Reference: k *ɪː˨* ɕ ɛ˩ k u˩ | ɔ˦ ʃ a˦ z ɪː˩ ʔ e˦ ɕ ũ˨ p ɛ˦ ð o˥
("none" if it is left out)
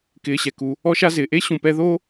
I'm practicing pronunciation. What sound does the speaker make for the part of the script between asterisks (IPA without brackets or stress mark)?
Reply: ɪː˨